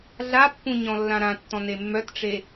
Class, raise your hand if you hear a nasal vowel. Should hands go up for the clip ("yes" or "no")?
yes